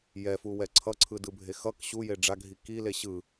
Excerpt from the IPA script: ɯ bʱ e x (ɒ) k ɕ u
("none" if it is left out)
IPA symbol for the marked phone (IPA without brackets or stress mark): ʌ